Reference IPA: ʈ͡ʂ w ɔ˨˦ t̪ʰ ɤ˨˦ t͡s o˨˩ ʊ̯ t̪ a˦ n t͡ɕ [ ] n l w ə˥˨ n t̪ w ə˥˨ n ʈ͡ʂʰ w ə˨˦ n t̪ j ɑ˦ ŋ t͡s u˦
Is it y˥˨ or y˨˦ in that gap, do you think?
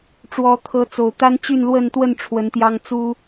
y˥˨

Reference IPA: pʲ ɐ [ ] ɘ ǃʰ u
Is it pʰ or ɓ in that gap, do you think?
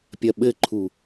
ɓ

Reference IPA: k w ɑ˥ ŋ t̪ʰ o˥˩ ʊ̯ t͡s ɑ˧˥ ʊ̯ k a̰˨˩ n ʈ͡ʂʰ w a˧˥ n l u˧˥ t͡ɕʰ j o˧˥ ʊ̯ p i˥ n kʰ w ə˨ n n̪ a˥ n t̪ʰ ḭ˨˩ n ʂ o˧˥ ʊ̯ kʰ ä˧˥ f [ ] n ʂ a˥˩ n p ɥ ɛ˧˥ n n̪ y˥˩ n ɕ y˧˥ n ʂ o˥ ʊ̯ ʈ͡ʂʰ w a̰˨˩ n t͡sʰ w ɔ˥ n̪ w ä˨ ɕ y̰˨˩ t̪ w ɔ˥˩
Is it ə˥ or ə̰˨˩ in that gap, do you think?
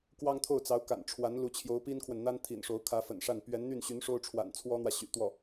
ə̰˨˩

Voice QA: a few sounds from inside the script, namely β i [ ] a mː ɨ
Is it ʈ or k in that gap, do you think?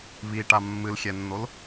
ʈ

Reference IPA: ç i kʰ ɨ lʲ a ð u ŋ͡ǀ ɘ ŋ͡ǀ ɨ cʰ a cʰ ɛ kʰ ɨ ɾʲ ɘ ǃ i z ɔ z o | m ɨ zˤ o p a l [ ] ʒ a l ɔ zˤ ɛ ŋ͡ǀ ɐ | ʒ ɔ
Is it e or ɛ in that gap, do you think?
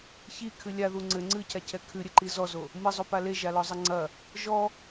e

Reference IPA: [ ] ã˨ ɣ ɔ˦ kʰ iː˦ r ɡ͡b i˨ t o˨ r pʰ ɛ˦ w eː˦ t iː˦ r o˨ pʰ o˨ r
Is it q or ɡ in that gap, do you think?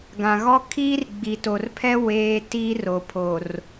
ɡ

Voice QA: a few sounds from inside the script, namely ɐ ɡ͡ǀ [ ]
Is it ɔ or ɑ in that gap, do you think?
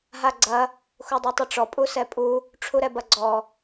ɔ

